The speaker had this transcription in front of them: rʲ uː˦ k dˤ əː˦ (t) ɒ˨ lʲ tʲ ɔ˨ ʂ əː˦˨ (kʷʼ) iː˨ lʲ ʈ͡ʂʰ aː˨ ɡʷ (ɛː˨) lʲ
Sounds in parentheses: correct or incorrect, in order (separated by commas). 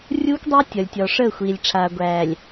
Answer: incorrect, incorrect, incorrect